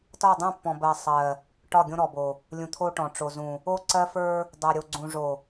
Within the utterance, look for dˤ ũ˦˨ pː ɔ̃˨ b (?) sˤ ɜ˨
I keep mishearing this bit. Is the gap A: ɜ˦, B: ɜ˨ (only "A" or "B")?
B